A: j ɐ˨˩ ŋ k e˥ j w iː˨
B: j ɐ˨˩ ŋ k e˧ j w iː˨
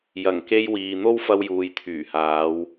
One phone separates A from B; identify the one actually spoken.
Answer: B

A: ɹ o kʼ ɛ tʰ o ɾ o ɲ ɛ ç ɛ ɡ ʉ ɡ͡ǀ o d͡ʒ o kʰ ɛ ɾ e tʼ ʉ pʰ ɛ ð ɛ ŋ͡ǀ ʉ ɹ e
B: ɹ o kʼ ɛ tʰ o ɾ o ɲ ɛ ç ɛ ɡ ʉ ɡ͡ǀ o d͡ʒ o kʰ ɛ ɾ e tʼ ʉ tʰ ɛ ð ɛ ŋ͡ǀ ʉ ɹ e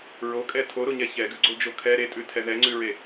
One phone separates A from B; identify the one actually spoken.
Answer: B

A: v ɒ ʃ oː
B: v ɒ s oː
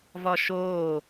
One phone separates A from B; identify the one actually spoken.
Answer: A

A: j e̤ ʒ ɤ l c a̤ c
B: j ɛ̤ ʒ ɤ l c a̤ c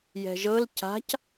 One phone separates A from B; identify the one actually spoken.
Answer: B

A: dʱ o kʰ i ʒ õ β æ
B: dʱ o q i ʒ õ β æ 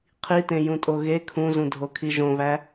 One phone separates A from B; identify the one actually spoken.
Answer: A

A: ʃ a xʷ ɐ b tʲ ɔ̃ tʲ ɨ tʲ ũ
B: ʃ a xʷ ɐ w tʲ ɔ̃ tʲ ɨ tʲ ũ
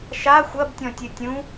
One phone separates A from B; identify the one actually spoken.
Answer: A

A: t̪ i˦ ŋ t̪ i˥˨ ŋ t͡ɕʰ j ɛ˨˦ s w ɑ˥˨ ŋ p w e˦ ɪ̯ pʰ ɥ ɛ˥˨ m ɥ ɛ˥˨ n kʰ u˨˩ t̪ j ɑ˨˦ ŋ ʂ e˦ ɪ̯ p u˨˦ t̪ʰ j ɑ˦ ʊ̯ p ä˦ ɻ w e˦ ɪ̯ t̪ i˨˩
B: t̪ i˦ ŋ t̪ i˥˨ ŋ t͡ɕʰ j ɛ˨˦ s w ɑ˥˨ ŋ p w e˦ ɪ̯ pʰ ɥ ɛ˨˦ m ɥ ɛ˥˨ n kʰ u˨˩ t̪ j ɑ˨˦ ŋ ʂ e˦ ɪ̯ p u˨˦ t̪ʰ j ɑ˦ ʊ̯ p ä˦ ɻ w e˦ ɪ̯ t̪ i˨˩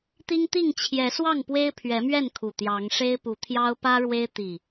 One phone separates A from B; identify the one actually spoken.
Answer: B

